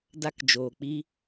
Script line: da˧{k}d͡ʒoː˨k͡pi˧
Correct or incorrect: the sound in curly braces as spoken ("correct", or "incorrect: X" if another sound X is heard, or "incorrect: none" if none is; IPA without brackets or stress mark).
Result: correct